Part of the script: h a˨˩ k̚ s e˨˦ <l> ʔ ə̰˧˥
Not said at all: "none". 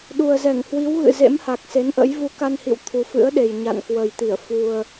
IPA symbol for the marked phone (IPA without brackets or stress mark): n